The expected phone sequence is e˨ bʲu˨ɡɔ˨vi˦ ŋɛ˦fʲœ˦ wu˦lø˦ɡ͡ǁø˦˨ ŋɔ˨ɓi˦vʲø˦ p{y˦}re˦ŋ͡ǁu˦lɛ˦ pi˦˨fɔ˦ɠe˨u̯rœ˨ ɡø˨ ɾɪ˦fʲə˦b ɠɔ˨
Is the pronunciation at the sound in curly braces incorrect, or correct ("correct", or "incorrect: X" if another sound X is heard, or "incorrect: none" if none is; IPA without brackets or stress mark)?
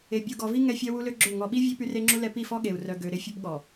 correct